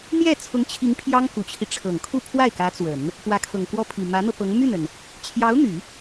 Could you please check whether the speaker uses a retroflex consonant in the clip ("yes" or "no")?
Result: yes